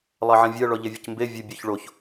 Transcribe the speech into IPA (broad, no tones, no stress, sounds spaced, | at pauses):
lˠ ɑ ʕ ɛ̃ vʲ ɜ ɭ ɔ ʎ e vʲ ə c m b e vʲ ə bʲ œ ç ɭ o ç